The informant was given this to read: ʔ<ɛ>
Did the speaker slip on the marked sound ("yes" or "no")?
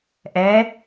no